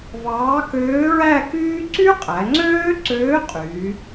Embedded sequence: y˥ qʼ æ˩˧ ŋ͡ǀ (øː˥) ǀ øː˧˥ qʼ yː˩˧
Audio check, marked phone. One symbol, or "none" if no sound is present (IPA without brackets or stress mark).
øː˥